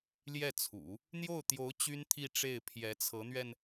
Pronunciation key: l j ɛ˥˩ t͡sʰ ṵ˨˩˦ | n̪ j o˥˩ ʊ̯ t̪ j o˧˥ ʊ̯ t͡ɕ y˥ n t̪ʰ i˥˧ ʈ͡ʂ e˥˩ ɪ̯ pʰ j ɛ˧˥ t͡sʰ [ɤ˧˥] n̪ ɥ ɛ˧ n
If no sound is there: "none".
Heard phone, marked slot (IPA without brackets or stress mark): ɤ˧˥